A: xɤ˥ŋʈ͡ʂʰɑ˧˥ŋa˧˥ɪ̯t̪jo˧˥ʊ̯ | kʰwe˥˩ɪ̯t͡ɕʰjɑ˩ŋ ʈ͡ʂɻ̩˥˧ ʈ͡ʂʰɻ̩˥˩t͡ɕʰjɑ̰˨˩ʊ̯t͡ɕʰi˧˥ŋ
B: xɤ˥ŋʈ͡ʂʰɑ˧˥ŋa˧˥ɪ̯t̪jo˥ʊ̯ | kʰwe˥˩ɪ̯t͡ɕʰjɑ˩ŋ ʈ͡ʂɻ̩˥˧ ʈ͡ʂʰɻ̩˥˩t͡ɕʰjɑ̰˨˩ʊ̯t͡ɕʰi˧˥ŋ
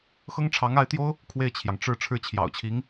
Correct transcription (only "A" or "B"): B